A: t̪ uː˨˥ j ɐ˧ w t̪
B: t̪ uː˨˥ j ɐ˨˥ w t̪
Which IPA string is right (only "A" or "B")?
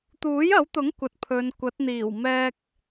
B